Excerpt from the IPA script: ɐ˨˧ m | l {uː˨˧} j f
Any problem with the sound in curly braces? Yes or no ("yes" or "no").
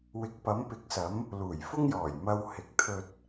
yes